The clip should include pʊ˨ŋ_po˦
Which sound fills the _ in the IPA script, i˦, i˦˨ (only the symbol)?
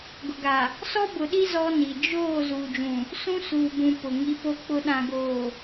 i˦